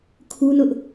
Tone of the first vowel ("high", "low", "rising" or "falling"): high